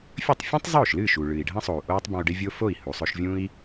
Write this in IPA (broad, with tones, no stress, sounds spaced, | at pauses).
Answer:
fʲ ɵ˥˩ tˤ fʲ ũː˥ tˤ zˤ oː˥˩ ʃ l ɨː˥˩ ʃ u˩ ɭ ɨː˩ i̯ ɖʱ ɐ̃˧ sˤ o˩ u̯ ʔ oː˥ tˤ b ɐ̃˧ u̯ ɖ e˥ vʲ o˥ f o˥˩ i̯ h u˩ sˤ ɵ˧ ʃ vʲ ũ˥ i̯